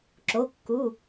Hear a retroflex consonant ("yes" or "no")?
no